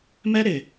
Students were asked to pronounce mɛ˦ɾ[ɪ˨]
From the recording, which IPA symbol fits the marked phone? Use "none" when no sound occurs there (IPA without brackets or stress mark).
ɪ˨